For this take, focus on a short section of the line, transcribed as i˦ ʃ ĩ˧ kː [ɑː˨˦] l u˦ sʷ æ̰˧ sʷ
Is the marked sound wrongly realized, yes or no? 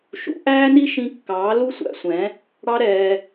no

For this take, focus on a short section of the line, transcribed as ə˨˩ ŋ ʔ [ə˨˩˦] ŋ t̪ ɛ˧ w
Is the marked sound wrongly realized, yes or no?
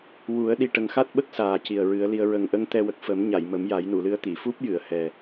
yes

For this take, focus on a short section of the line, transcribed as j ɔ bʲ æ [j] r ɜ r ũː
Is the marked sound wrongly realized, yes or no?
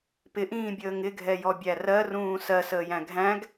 yes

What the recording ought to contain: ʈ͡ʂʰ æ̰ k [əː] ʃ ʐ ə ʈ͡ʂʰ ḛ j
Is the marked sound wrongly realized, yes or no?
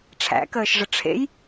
no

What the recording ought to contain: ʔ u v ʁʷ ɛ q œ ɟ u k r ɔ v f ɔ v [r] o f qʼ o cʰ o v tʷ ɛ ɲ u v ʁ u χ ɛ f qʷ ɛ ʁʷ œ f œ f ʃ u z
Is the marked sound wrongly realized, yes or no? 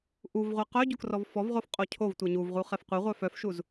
yes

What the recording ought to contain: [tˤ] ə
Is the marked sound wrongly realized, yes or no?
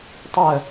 no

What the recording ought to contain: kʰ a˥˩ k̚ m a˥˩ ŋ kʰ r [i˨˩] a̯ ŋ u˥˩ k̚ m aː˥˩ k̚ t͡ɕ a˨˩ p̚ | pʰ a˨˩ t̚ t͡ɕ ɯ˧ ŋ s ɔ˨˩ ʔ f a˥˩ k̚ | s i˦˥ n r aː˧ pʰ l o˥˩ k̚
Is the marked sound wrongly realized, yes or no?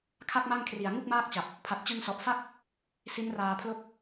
no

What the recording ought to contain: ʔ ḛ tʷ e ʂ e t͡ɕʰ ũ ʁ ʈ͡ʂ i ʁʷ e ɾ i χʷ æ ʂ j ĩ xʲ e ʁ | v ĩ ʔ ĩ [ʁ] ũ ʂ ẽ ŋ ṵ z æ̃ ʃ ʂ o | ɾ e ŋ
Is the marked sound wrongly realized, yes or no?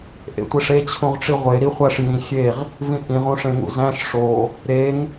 no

